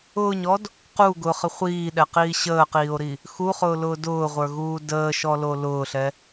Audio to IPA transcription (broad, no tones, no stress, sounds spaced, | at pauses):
ʊː ɲ ɔ d | q u ɡ ʊ χ ə χʷ iː ɗ ɛ q iː ɕ əː q iː o̯ ɾ i | x u χ ʊː l ʊː d ʊː ʁʷ ə˞ ɣ uː d əː ʃ ɔ l o l ʊː ɬ ɛ